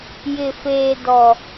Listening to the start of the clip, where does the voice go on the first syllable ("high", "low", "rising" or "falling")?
low